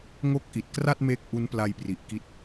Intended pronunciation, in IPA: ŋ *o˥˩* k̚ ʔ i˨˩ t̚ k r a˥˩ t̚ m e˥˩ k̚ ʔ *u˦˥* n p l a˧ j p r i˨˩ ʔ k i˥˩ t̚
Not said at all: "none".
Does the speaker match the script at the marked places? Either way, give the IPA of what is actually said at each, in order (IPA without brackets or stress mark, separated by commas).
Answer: o˦˥, u˦˥